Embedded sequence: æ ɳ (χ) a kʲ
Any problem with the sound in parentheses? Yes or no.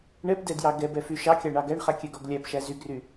no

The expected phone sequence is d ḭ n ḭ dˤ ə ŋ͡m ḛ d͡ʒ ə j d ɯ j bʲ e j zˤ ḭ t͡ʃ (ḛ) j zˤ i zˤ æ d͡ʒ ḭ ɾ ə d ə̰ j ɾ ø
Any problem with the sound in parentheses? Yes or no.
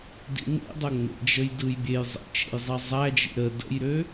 no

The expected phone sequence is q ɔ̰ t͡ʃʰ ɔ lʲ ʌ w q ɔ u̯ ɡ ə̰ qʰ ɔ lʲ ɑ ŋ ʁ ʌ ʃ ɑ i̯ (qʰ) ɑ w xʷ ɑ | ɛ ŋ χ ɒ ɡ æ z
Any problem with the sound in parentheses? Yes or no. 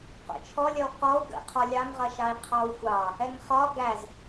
no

